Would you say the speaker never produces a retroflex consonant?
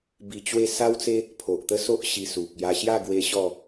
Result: yes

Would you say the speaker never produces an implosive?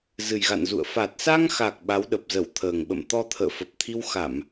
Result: no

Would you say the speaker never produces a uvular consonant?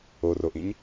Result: yes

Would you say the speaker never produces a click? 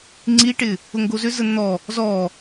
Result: no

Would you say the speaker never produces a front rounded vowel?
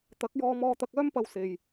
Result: no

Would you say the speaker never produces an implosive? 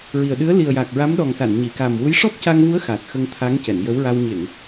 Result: no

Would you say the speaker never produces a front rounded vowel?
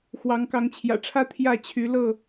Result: no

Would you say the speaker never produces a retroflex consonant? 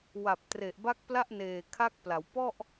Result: yes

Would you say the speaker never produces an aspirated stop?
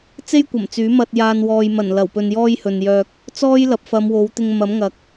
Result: yes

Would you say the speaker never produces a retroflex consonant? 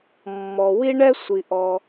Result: no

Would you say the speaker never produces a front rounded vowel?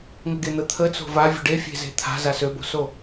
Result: no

